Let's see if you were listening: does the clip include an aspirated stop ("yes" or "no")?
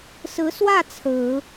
yes